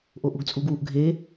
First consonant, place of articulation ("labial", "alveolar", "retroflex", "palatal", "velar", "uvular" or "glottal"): glottal